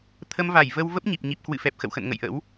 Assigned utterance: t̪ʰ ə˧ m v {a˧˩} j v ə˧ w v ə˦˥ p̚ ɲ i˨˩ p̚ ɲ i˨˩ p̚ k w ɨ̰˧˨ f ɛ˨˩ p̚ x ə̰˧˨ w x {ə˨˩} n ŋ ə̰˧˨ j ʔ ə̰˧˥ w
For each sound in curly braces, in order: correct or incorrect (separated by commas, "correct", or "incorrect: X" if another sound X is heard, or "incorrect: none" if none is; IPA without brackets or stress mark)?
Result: correct, incorrect: ə̰˧˨